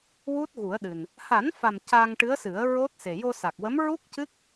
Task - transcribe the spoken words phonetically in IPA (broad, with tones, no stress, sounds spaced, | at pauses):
w u˦˥ t̚ ɣ u˨˩˦ ə̯ ɗ ɨ˨˩ n | h a˨˩˦ n f a˨˩ m c a˧ ŋ ʈ ɨ˧˥ ə̯ s ɨ˨˩˦ ə̯ ɹ o˦˥ t̚ s e˨˩ j o˧ s a˨˩ k̚ w ə˧˥ m ɹ u˦˥ k̚ c ɨ˦˥ k̚